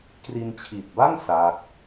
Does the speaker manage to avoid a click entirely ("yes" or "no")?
yes